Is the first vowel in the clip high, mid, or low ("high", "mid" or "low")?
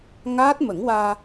low